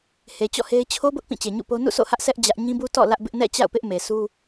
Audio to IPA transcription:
h e˨ t͡ɕ ɔ̰˦˨ h e˦ ɪ̯ t͡ɕʰ o˦ b ʊ˦ ʔ p ĩ˦˨ t͡ɕ e˨ ɲ ṵ˦˨ p o˦ n ṵ˦˨ sʰ o̰˦˨ h ä˦ ʔ s ɛ˦ ʔ d͡ʑ ä˦ ʔ ɲ ĩ˦ b u˦ t ɔ̰˦˨ l ä˦ ʔ b ɪ˦ ʔ n ɛ̰˦˨ t͡ɕ a̰˦˨ ʊ̯ p ɪ˦ ʔ m e˨ sʰ u˦

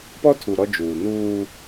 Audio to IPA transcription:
p ɔ˦ tʰ u˨ ɾ ɔ˦ d͡ʒ uː˨ n uː˦

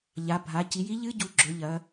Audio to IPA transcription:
ʎ a˩˧ bʱ a˩˧ c i˩˧ j i˧˥ ʎ ɨ˧˥ ɟ u˩˧ ɡ͡ǁ ɵ˩˧ ʎ ɐ˩˧

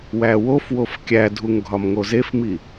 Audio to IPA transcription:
w æ w o f w o f kʲ æ dʱ u ŋ ɡʱ ɒ m ŋ o z e f m i

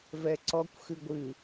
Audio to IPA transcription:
v ɛ ǀ ɔ kʷ x ɨ ɡʷ ɨ

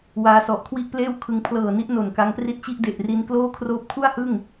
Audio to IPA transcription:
w aː˧ s ɔ˨˩ ʔ kʰ w i˥˩ ʔ p l eː˥˩ w kʰ ɯ˧ ŋ pʰ l ɤː˨˩ n i˦˥ ʔ n o˨˩ n k a˦˥ ŋ p r i˥˩ t̚ t͡ɕ i˥˩ ʔ d e˨˩ ʔ r i˧ n k l oː˥˩ kʰ r oː˦˥ p̚ kʰ u˥˩ a̯ h ɯ˥˩ ŋ

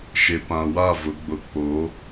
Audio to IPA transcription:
ʃ e˨ p ã˨ w a˦˨ v ʊ˨˦ ɡ͡b ʊ˨ k͡p o˨˦

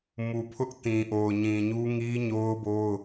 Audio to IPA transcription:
m u˨ pʰ ʊ˦ ʔ t ĩ˨ ʔ o˨ ʊ̯ ɲ ĩ˨ ɲ u˦ ŋ i˦ ɲ o˦ ʊ̯ b o˦ ʊ̯

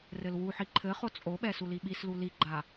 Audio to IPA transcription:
r ɘ l w u ħ i ǃʰ ɘ χ o t͡sʼ o ɓ ɛ s u l i ɓ i s l u l i ɡ͡ǃ a

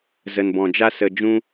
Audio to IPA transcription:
z ə˨ n b ɔ̃˨ d͡ʒ a˦ s ə˨ d͡ʒ ũ˧

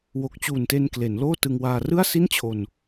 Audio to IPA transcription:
w o˨˩ k̚ t͡ɕ uː˨˩ n t e˧ n k l e˩˦ n l oː˥˩ t ɯ˧ ŋ w aː˧ r ɯ˥˩ a̯ s i˥˩ n t͡ɕʰ o˧ n

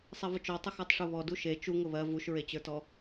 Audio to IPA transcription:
sˤ ɛ v ʊ t͡ʃ ɔ tˤ ʊ x ɔ tˤ ʂ ʊ β ɔ d u ʃ e t͡ʃ u ŋ ʊ β ɜ v u ʃ ɹ e t͡ɕ ə˞ t ɔ

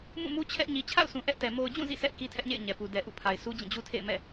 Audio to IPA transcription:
m ũ˦˨ m u˦ t͡ɕʰ ɛ˦ ʔ ɲ i˨ t͡ɕʰ a̰˦˨ ʊ̯ s ũ˨ ʔ ɛ˦ ʔ t ɛ˨ m o˨ ʊ̯ d͡ʑ ũ˦˨ z ḭ˦˨ s ɛ˦ ʔ k i˦ tʰ ɛ˦ ʔ ɲ ḛ˦˨ ɪ̯ ɲ ɛ˨ p u˨ d ɛ˨ ʔ ṵ˦˨ pʰ a˨ ɪ̯ s u˦ d͡ʑ ĩ˦˨ d͡ʑ u˦ tʰ ḛ˦˨ ɪ̯ m ɛ̰˦˨

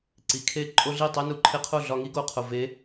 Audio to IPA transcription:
ǀ i˩ kʰ e˥˩ ǃʼ o˥ ɮ i˥˩ tˤ e˥ n u˩˥ ǃʰ e˧ qʰ o˥˩ ɮ ɒ˧ ŋ i˥ ɡ o˩ qʰ o˩ v e˩˥

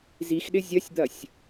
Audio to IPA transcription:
z i x ɗ ɪ zʲ ɐ sʲ d̪ ɐ sʲ

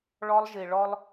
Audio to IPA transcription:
ɭ ɔ˧ lˠ ʒ i˨ ɭ ɔ˦ lˠ

